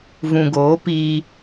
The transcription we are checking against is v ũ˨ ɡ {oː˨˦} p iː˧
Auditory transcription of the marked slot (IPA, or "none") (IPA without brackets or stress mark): oː˨˦